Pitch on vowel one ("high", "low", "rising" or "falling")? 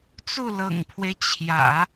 falling